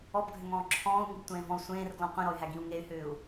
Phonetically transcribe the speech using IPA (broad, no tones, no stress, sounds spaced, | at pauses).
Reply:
ɔ b ɡʱ ʏ ŋ ɔ̃ː ǁʰ ɔ̃ː u̯ ŋ i b tʷ ẽː v ɔ̃ u̯ sʷ ẽː r ɡ l ɔ̃ qʷ ẽ ɾ ɔ y̯ ɦ æ ɡ ĩ u̯ ŋ e y̯ h ʏː u̯